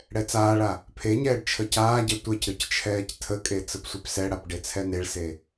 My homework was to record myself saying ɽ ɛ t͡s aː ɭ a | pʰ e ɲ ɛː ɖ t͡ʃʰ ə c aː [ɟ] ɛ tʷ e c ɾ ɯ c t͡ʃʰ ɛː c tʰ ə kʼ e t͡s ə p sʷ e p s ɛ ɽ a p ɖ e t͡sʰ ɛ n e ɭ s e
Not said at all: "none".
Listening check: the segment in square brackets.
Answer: ɟ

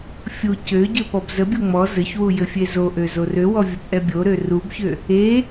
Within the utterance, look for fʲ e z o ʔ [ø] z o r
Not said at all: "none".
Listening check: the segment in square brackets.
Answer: ø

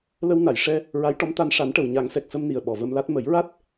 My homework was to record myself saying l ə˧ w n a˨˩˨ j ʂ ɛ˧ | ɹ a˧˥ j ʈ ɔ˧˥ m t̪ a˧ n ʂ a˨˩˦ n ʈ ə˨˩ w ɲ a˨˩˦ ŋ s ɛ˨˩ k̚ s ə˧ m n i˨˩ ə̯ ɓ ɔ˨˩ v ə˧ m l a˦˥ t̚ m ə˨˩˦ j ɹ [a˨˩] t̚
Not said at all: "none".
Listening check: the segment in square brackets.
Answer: a˦˥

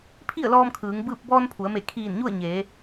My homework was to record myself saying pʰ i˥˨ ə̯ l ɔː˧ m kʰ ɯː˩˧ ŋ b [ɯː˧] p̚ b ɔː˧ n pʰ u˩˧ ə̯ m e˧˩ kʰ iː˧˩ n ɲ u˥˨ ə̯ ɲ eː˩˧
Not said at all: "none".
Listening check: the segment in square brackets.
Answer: ɯː˥˨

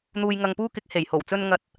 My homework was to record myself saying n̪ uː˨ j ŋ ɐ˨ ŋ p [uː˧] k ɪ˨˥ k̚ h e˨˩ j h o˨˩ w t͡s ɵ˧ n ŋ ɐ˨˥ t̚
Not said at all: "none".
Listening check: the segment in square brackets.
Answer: uː˧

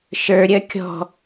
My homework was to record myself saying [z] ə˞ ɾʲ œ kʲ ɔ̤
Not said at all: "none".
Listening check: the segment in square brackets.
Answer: ʃ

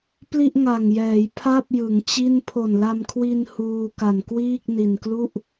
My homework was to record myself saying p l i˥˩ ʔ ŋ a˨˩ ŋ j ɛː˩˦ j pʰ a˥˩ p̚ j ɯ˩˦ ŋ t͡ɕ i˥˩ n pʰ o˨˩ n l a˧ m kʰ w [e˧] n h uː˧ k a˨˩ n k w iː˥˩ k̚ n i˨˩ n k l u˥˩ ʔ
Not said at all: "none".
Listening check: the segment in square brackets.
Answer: i˧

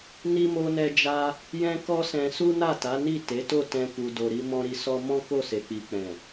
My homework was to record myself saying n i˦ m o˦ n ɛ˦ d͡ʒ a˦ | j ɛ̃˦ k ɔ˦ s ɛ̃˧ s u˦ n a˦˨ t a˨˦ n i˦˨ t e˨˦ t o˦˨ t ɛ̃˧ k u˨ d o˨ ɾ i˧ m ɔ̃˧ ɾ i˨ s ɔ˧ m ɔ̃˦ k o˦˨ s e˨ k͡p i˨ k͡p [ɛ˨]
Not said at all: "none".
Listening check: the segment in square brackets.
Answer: ɛ̃˨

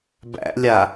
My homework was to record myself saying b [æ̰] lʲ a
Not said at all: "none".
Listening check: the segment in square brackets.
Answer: æ̰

